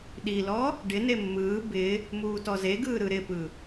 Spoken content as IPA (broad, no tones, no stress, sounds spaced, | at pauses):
ɗ i l ɔ | ɖ ɪ n e mː ɯː b ɪ | m uː t ɔ z e ɡ ɯː ɾ ɯ ɾ ɪ p ɯ